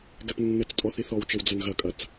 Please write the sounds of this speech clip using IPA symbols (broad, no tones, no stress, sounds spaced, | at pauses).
ɡ ɛ p nː ɘ t͡s tʼ ɔ θ i θ ɔ w t͡ʃ ɘ w d͡z ɐ n ɣ ɐ kʼ ɐ t͡s